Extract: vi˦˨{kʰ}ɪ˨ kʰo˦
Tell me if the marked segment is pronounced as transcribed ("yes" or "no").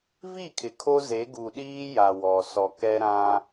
yes